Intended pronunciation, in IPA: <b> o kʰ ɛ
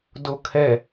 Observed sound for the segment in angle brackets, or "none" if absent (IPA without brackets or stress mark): d